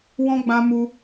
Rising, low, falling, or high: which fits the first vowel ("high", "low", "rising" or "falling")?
high